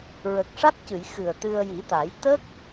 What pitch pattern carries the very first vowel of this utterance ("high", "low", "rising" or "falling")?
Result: low